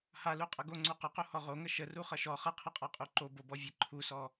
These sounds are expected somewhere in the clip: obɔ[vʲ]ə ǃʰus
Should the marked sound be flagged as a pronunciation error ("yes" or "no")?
no